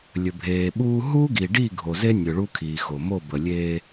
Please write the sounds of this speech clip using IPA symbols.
lʲ ɵ˨ bʱ eː˨ ɓ uː˦ ɦ uː˦ ɡ i˨ ɖ i˦˨ ɡʱ o˨ z e˦ nʲ ɵ˨ ɭ u˦ kʰ iː˨ x o˨ m o˦˨ b ə˨ lʲ eː˦

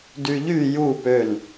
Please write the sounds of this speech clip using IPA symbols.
d y ʎ y j u p ø n

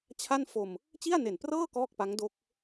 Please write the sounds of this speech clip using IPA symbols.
t͡ɕʰ a˥˩ n f o˧ m | t͡ɕ i˥˩ a̯ n e˨˩ n p r ɤː˥˩ k ɔː˥˩ k̚ p a˦˥ ŋ d o˦˥ k̚

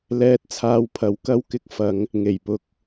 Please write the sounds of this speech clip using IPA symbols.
l ɛː˧ t̚ t͡sʰ aː˧ w pʰ ɐ˨˥ w k ɐ˥ w k ɪ˥ k̚ f ɐ˨˥ ŋ | ŋ e˨˩ j p ʊ˧ k̚

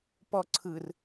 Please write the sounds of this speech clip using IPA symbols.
p ɔ ǀʰ ɯ r

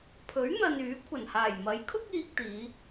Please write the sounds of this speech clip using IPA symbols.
pʰ ɵ˨˥ ɥ n̪ ɐ˨ n yː˨˥ kʷʰ ɐ˨˩ n h aː˨˩ j m ɐ˨˥ j kʰ ʊ˥ k̚ iː˧ k̚ t̪ iː˨˧

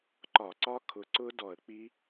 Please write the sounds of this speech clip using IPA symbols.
ǃ ɒ˧˩˧ ǀ ɒ˦˥ kʰ ʊ˨˥ ǀ ʊ˦˥ d ɔ˧˩˧ ə̯ k͡p i˦˥

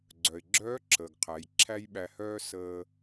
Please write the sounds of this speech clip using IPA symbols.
ɡ͡ǀ œ˩ ɪ̯ ɡ͡ǁ œː˧˥ ǁʰ əː˩ ɡ qʰ æ˩˧ j ǁʰ æ˥ j ɓ æ˧ h œː˥ s əː˧

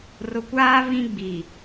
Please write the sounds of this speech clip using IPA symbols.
r ʊ˨ kʷ aː˦ β ĩ˦ ɡ͡b i˨

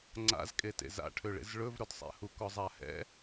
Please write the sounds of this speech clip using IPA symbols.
ŋ͡ǀ a̰ z kʼ e t ḛ z a̰ ʈʰ ø ɭ ḛ z ɭ ɵ v ɾ ɵ d sˤ ɛ̰ h u k ɔ zˤ a h ɛ̰

